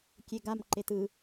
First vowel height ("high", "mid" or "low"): mid